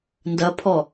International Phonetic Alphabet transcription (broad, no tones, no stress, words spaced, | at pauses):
ndɐpʰɔ